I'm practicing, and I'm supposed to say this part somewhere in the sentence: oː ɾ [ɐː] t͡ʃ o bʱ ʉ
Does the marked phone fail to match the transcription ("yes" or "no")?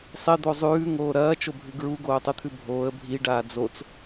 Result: no